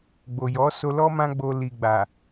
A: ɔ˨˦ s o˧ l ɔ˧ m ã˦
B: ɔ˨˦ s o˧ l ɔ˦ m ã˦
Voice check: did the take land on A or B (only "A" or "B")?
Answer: B